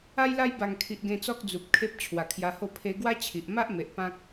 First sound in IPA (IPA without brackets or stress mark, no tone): a